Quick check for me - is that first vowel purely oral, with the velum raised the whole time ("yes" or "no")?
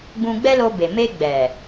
no